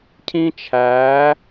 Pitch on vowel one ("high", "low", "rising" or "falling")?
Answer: high